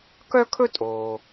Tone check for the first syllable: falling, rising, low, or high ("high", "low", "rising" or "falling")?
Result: high